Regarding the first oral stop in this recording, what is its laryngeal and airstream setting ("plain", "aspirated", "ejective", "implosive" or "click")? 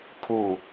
aspirated